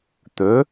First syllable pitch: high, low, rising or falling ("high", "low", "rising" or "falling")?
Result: rising